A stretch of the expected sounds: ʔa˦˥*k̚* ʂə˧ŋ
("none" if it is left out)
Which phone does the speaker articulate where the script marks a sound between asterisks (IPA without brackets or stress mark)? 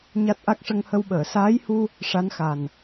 k̚